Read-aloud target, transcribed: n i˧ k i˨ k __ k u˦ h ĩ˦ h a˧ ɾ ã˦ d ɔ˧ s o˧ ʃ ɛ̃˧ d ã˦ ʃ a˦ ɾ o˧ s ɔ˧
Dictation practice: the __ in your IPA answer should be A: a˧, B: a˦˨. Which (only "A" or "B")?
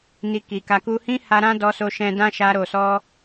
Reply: A